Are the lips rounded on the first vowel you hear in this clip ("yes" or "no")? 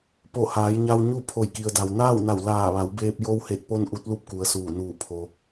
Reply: yes